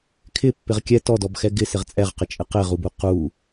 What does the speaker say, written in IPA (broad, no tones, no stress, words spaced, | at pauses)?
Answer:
kʰɪpːɪʁ kʲɛ tɔdɔbxɛ ɡɪsɪʁ t͡sʼɛʁqɪt͡ʃʼɪ qɪʁubu qu